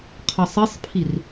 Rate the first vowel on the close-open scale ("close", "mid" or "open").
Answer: open